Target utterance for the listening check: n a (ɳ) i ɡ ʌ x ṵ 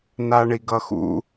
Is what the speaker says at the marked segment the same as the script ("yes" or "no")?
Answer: yes